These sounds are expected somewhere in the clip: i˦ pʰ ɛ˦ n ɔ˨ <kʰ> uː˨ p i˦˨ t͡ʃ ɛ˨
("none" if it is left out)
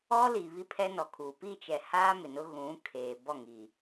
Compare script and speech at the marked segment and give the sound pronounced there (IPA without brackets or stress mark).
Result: kʰ